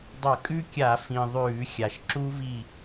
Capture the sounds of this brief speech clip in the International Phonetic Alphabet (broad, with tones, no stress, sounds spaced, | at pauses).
dˤ ɐ˧˩˧ kʼ ʉ˦˥ kʲ a˧˩˧ f ĩ˨˩ ðˤ ʉː˧˩˧ xʲ a˨˩ ʃ ǁ u˦˥ v i˦˨